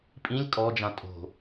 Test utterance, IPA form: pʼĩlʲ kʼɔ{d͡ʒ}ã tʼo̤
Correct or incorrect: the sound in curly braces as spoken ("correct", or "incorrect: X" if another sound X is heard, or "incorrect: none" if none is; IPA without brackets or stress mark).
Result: correct